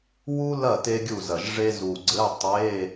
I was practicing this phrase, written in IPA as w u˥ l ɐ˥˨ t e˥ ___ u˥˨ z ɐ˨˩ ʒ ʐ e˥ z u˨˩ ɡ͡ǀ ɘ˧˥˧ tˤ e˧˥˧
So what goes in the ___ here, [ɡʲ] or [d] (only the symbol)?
ɡʲ